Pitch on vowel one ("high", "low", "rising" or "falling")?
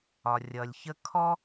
low